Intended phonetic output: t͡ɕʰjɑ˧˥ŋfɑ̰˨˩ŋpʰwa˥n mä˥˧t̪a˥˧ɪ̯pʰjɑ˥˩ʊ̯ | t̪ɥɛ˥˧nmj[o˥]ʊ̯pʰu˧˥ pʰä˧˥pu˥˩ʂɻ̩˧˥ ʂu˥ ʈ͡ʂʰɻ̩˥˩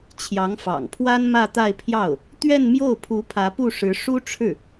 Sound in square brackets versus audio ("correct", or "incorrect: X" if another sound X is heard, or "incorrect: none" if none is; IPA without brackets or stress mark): incorrect: o˥˩